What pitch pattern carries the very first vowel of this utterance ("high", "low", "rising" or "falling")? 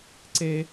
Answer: high